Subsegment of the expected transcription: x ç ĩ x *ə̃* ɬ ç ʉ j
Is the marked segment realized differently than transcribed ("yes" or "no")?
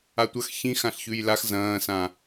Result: yes